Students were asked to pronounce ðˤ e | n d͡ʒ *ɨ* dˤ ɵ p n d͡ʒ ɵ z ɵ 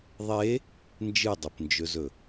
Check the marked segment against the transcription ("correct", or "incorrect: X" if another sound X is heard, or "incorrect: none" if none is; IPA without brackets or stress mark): correct